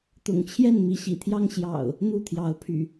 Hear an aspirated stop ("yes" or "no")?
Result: yes